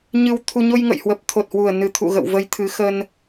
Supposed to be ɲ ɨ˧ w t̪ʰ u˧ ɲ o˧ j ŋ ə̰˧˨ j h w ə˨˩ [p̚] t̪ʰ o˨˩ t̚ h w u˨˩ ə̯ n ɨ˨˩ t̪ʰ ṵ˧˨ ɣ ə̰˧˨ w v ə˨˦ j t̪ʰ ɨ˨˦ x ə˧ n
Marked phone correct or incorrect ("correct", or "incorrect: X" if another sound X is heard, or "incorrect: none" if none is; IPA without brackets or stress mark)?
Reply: correct